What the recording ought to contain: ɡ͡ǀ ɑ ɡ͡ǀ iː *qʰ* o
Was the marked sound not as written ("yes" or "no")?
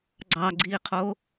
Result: no